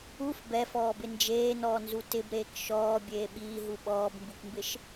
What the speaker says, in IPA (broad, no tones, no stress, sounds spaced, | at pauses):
u f b ɛ f ɔː b ɪ n d͡ʒ eː n ɔː n z u t ɪ b ɾ eː k ʃ ɔː bʲ eː ɓ iː ɦ u ɓ ɔː b m b u k m b ɪ ʃ